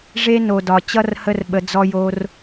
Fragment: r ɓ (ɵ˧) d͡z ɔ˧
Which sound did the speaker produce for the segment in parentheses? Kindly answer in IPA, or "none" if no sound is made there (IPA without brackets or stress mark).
ə˧